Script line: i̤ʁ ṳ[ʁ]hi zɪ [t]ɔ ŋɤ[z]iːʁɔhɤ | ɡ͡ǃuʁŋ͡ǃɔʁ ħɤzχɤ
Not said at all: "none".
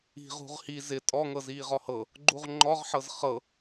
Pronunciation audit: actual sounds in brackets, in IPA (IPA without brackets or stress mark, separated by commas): ʁ, tʼ, z